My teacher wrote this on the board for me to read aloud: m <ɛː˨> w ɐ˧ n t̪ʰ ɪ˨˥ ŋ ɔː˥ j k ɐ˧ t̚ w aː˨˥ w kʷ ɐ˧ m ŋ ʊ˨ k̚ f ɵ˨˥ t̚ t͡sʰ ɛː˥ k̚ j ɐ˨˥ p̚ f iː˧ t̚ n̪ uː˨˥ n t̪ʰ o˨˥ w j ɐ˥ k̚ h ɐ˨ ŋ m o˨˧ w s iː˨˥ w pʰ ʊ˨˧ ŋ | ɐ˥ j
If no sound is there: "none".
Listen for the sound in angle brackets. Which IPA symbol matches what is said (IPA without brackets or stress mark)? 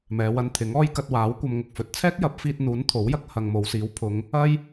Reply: ɛː˨˧